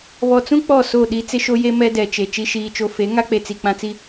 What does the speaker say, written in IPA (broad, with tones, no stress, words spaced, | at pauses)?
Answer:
βɔ˨t͡sũ˦ k͡pɔ˦˨ so˦˨ɗi˦ t͡sɪ˦ʃo˦je˦ mɛ˦dɛ˨t͡ʃe˨ t͡ʃi˨ʃiː˨t͡ʃo˨ fe˨˦ŋa˦k͡pe˨t͡si˨ k͡pã˦t͡si˦